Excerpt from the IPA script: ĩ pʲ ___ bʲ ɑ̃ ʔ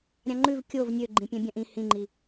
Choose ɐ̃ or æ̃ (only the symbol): æ̃